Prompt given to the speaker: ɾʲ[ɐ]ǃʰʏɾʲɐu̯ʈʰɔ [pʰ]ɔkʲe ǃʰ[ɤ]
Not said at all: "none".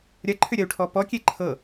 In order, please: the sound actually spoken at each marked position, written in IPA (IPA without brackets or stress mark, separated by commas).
ɐ, p, ɤ